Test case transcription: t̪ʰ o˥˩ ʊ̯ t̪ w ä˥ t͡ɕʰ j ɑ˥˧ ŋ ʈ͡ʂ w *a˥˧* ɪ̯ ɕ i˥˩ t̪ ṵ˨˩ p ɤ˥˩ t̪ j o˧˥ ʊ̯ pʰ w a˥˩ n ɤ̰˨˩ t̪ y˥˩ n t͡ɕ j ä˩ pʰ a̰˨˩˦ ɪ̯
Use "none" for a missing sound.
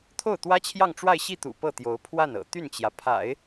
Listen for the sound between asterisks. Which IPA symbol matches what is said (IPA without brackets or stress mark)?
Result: a˥˧